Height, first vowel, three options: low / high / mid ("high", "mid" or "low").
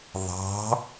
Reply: low